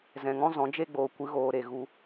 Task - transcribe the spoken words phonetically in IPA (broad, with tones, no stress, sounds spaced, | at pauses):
z ɛ̃˨ ŋ ɔ̃˦ z ɔ̃˨˦ d͡ʒ e˦ ɡ͡b oː˨ kʷ ɨ˧ ɣ oː˨ ɾ e˨ ɣ u˧